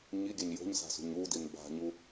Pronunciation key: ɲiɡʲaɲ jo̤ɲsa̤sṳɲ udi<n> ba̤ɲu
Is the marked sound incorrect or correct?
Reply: correct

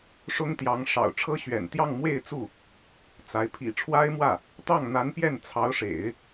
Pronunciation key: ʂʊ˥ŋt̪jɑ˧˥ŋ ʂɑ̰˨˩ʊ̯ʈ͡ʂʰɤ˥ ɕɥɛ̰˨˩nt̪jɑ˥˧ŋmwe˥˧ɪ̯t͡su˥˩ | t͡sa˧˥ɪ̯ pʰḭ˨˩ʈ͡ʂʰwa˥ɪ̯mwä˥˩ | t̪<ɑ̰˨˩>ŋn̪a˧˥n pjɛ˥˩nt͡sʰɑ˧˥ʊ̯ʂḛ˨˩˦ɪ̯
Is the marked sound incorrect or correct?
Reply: incorrect: ɑ˥˩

